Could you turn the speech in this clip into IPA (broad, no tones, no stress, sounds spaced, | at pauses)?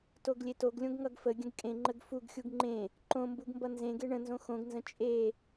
t o ɡ lʲ e t o ɡ lʲ õ ɡ ŋ ʌ ɡ f ə ɡʲ ə̃ ɡ kʼ ẽ ŋ͡ǃ ə ɡ f u ɡ xʲ u ɡ ŋ͡ǃ ẽ | ǃ õ m b u ɡ m b ʌ n z ẽ ɡ e ɳ ə̃ n z õ x õ ɡ n z ə̃ t͡ʃʼ e